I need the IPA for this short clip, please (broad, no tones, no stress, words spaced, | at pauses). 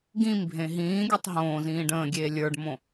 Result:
ɡĩmbʱẽ ɦĩːɡʲotˤ ɦõː zĩːɖə̃ːɡʲeː lʲə˞ɖmõ